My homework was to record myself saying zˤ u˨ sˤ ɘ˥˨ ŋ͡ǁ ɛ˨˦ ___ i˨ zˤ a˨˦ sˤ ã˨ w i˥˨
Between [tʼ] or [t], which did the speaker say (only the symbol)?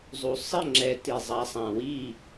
t